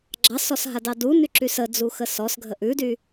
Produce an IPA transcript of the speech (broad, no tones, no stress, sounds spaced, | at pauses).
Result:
ɡ͡ǁ ɑ s ɔ s ɦ a d ɑ d u n y ǁ y s ə d͡z u x ə s ɔ s ɡʱ ə ʔ ʉ d y